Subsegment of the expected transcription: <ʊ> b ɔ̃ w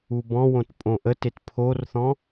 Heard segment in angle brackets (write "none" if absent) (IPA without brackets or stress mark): u